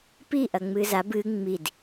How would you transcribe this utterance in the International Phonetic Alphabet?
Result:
p i ʔ ɐ ŋ͡m ɨ z a b ɨ ŋ͡m i d

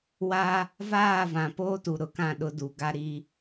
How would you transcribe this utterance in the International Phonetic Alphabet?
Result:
w a˦ | v aː˦˨ v ã˨ p oː˦ t u˨ ɾ ʊ˨ k ã˦˨ ɗ ʊ˦ d u˨ ɡ a˦ ɾ i˦

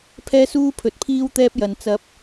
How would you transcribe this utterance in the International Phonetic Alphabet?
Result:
pʰ ɛː˥ s uː˥ pʰ ɵ˨˥ t̚ pʰ iː˥ w t̪ ɛː˥ p̚ j ɐ˨ n t͡s ɐ˧ p̚

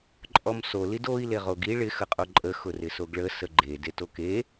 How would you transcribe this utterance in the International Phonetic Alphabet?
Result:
ǃʼ ɔ m s o l i d o i̯ l e ʁ o ɡ i ɭ ɪ x ə qʼ o ǃʼ ə x ʊ r ɪ s o ɡ ɭ ə s ə ɡ͡ǃ e d e t o k e

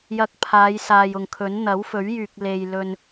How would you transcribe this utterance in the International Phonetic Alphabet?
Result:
j ɐ˧ k̚ pʰ aː˨˧ j s aː˨ j ʊ˨ ŋ kʰ ɵ˨˥ n n̪ ɐ˨˥ w f ɵ˨˥ ɥ j yː˨ k̚ l e˨ j l ɵ˧ n

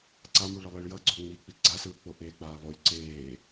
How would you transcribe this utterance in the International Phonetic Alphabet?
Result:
ǀ a m u ɭ ʌ lˠ i ɭ j ʌ ɡ͡ǀ o ŋ͡m i k͡p i ɡ͡ǀ a s ɯː k͡p o ʔ eː k͡p aː lˠ o lʲ ǀ eː

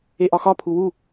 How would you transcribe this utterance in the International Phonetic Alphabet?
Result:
e ʔ ɒ x ɒ pʰ u w u

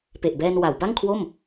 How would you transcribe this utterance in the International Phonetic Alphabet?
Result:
p e˨˩ ʔ b ɛː˧ n w a˩˦ w b a˥˩ ŋ kʰ w o˥˩ m

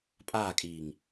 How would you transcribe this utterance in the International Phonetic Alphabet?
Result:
pʼ aː kʼ iː ŋ

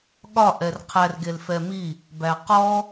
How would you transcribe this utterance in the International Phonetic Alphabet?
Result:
ɠ ɒ ʔ ɛ r qʰ æ r ɡ e l f ɛ m i | b æ q ɔ

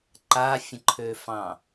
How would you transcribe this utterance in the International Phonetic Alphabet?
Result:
ǃ a fʲ ə̃ ǃʰ ø f ɑ̃

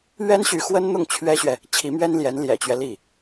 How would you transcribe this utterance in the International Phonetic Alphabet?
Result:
ɥ ɛ˥ n ɕ y˧˥ x w ə˥ n n̪ ʊ˥˩ ŋ t͡ɕʰ ɥ ɛ˥ ɕ ɥ ɛ˨ | t͡ɕʰ i˧˥ m ɥ ɛ˥ n l j ɛ˧˥ n l j ɛ̰˨˩ t͡ɕ ɥ ɛ˦ l i˥˩

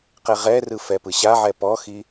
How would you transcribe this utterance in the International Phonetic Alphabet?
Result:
q ɛ ʁ ɛ r ɯ f ɛ p ɯ ɕ a ʕ ɛ p ɔ x i

